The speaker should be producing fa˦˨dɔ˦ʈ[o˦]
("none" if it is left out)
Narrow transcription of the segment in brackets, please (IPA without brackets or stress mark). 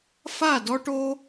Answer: o˦